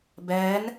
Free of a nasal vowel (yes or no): yes